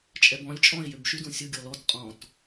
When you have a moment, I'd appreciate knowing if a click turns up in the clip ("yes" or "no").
no